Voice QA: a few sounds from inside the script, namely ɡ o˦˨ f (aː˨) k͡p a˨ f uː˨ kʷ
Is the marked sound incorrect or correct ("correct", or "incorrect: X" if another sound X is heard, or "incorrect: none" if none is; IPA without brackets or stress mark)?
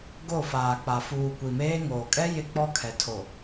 correct